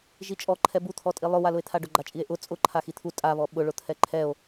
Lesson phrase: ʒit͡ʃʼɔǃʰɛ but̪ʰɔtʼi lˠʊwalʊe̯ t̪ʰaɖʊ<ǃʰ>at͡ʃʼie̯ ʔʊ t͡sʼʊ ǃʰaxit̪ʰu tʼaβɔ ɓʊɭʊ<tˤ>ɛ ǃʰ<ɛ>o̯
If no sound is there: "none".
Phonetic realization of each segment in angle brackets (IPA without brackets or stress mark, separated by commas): ɡ͡ǃ, t̪ʰ, ɛ